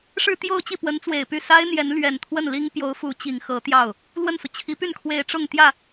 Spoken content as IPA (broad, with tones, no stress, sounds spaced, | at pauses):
ʂ ɻ̩˥˧ t̪ j o˥˧ ʊ̯ t͡ɕ i˥˩ p w ə˧˥ n t͡s w e˨˩ ɪ̯ p y˥˩ s a˥ ɪ̯ n̪ j ɛ˧˥ n l ɥ ɛ˨˩ n t̪ʰ w ə˥˩ n l i˥ ŋ p j o˧˥ ʊ̯ f u˧˥ t͡ɕ i˨˩ ŋ x ɤ˧˥ t̪ j ɑ˥˩ ʊ̯ | l w ə˥˩ n s u˩ t͡ɕʰ i˧˥ p y˥˩ n kʰ w e˧˥ ɪ̯ ʈ͡ʂ ʊ˥˧ ŋ t̪ j ä˥˩